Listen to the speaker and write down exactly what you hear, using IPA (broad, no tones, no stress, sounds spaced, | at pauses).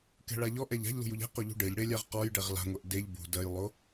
k ɛ̤ ɭ a ʎ ɔ ʔ ɛ ʎ a̤ ʎ l ṳ j u ʎ ɛ̤ q o ʎ ṳ ɖ e ʎ ɽ e lʲ a ʁ q ɔ j ɖ ɛ ʁ l a̤ ŋʷ ɛ ʔ d e ʎ b ṳ d ɜ j lˠ o